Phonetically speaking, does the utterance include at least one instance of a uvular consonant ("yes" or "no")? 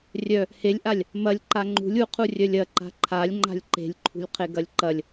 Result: yes